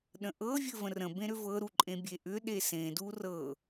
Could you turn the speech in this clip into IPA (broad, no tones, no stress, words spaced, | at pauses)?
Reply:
ɗə̃ʔɤ vʲɘvə̃rə̃ bẽɾʏvɤ ɾuǃʼẽbʲeʔʏ ɗesẽ durɤ